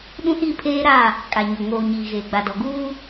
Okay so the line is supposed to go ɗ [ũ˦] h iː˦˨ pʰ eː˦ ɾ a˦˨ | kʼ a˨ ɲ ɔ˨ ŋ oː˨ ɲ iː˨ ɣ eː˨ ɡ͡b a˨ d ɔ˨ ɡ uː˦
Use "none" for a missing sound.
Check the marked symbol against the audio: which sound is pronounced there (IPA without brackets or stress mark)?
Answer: ũ˦